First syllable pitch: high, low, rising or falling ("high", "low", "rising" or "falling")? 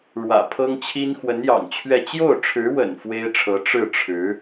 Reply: low